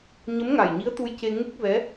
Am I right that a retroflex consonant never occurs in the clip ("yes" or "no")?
yes